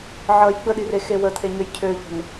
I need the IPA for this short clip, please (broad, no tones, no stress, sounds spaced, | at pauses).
ʕ ʌ j ɡ͡b ə ɗ i r e x e w ə t̪ʰ e ɲ ø j cʰ ø ʎ ə̤ n